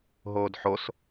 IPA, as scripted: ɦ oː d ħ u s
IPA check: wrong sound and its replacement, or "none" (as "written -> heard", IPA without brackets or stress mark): u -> o